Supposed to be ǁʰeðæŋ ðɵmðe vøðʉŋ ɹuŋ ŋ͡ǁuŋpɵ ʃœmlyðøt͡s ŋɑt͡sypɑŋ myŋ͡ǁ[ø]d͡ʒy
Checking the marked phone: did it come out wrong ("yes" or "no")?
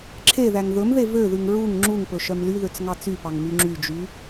yes